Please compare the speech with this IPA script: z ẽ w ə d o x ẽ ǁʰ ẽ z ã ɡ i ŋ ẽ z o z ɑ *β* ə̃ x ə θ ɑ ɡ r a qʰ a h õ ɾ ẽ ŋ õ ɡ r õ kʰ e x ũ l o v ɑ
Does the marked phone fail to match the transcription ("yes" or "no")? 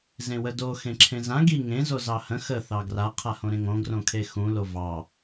yes